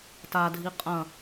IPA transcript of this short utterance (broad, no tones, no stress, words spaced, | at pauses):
tadʱi qʼɐ̃